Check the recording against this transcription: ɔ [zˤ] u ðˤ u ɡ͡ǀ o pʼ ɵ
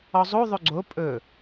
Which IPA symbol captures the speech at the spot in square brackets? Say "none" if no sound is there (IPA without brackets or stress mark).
zˤ